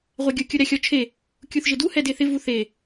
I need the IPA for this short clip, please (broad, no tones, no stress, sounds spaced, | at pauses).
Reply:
ʁʷ ɛ ɡʲ ʊ kʲ ʊ ɾ ɛ xʲ ɔ t͡ʃʰ e | kʲ u θ ʒ ɪ d u h ɛ d e θ ɪ v u θ e